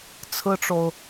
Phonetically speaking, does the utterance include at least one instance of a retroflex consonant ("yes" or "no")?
yes